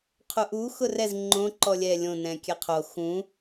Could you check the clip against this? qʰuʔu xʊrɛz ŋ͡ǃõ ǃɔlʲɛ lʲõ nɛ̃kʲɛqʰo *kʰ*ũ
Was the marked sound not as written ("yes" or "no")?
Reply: yes